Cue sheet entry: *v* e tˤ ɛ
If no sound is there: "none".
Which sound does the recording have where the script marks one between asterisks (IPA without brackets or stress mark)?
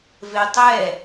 v